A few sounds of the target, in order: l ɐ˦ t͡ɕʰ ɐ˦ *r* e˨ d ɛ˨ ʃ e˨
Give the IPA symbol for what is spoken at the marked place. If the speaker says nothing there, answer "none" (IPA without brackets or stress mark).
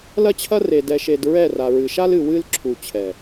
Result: r